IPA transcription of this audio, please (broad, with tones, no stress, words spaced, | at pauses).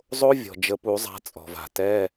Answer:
zˤo˦˥ vʲɔ̤˩d͡ʒə˨˦pu˨˩˦zˤa̤˨˦ t͡sʼɔ̤˩va̤˩tɛ˧˥˧